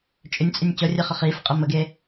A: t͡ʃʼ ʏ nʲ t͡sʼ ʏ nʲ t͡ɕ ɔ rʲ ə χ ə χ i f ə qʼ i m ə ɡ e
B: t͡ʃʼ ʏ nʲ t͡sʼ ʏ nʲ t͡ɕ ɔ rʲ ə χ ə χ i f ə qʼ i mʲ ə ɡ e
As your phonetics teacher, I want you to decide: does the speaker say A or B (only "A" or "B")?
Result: A